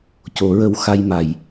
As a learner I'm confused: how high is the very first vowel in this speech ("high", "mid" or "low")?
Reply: mid